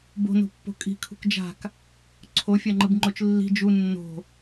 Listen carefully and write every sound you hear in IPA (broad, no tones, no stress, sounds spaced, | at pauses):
b o̤ n o̤ pː o̤ kʼ i̤ kʰ ṳ k d͡ʒ a̤ k | ǀʰ o fʲ a ŋ͡ǃ ɯ b ŋ͡ǃ o t͡ʃ lː i̤ d͡ʒ u nː o̤